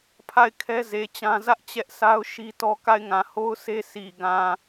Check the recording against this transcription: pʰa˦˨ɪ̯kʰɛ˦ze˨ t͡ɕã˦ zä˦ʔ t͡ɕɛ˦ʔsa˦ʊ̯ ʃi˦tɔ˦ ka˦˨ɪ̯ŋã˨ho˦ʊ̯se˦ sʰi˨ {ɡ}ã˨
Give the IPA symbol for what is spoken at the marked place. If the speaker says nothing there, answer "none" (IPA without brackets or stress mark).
ɡ